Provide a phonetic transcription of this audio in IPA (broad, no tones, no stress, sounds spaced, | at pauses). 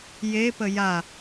j e p ə j a